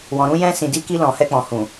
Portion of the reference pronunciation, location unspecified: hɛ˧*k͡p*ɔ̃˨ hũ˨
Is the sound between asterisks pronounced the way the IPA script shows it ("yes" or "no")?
yes